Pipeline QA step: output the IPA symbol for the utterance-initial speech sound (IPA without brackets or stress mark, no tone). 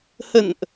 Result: h